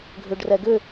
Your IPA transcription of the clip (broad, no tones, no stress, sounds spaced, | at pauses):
ɡʱ ʏ ɖ r ɛ ɡ ʏ